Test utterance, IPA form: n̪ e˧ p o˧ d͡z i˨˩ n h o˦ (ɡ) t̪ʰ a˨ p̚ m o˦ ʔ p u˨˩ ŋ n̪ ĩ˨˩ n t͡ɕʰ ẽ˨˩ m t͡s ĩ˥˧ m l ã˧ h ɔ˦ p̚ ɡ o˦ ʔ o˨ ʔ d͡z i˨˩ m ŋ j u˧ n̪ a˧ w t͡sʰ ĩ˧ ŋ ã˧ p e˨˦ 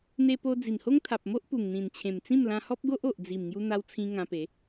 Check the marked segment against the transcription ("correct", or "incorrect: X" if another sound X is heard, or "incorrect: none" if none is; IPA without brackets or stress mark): incorrect: ŋ